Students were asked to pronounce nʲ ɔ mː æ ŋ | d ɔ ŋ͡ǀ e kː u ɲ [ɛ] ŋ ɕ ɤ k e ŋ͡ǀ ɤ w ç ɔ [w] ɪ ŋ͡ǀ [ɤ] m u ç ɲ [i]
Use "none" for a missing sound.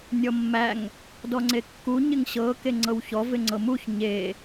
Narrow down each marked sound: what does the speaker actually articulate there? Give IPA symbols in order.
ɪ, v, ɤ, e

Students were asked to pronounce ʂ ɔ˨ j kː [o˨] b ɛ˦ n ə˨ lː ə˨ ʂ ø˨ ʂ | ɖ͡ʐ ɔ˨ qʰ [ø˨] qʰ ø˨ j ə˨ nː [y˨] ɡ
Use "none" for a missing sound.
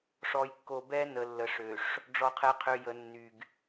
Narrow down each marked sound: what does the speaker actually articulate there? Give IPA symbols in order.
o˨, ɛ˨, y˨

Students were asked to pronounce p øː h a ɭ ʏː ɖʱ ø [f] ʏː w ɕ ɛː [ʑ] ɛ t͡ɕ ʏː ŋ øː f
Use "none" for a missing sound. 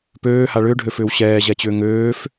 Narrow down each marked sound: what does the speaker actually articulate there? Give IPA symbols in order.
f, ʑ

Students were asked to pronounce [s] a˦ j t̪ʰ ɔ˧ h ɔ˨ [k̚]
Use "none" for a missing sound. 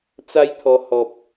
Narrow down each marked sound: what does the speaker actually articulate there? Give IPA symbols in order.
t͡s, p̚

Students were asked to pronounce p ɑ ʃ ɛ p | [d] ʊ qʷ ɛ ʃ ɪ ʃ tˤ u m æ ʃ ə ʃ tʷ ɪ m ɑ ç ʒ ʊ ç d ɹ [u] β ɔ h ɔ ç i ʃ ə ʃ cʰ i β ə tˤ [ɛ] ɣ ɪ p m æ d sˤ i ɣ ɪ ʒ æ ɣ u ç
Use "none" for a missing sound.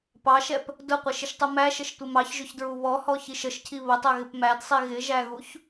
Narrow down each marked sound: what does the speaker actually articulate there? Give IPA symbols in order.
d, u, ɛ

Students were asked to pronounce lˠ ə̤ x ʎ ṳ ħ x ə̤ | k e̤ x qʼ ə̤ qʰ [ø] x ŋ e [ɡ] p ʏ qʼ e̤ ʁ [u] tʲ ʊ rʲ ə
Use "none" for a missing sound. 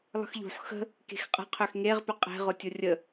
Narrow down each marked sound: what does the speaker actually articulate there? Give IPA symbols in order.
ø, ʁ, ʊ

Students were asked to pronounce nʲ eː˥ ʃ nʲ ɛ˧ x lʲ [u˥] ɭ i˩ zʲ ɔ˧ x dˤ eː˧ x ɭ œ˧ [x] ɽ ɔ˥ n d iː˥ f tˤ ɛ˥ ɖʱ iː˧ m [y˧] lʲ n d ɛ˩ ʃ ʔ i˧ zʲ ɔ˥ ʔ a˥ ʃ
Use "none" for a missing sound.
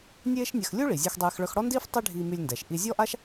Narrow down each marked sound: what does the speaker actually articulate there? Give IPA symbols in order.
u˥, x, y˧

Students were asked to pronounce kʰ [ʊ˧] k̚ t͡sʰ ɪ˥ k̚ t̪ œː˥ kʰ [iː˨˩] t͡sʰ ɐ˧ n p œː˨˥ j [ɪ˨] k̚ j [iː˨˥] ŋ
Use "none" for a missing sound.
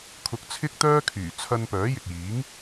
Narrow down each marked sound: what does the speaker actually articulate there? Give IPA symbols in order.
ʊ˧, yː˨˩, ɪ˨, iː˨˥

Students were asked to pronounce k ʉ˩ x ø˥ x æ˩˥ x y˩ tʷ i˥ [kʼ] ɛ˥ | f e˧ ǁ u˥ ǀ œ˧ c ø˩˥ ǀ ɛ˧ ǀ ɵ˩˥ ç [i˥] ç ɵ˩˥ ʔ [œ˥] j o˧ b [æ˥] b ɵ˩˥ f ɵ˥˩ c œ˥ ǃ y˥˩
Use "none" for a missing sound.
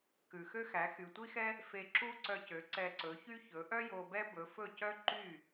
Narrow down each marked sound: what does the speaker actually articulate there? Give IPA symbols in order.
x, y˥, œ˥, ɛ˥

